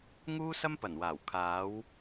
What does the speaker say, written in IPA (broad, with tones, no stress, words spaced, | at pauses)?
ŋuː˥sɐ˥mpɐ˨˩nwaː˨˩w kʰaː˨˧w